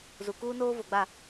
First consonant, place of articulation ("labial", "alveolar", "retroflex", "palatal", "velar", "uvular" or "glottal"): alveolar